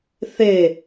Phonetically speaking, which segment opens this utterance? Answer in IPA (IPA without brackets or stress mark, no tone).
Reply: θ